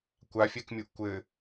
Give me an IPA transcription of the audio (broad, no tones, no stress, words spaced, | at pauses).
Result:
kʷafʲɛkmʲuʔ kʷɘ